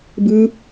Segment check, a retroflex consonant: absent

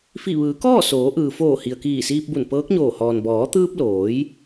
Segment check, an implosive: absent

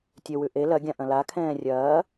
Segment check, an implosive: absent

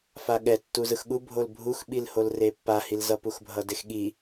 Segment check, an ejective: absent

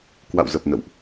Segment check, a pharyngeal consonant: absent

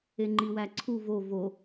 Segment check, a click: present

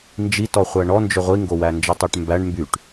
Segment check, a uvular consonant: present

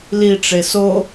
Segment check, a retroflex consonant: present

